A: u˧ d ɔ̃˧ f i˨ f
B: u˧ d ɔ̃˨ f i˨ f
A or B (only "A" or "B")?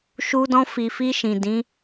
A